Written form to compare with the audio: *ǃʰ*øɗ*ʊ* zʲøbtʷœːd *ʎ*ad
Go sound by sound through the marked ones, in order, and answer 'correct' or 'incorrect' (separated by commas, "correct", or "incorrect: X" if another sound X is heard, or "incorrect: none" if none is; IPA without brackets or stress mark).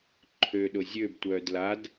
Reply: correct, correct, incorrect: l